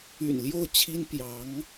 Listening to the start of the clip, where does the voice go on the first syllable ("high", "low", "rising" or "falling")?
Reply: low